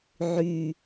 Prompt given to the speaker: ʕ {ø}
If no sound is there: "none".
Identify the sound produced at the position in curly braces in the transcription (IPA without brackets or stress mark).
y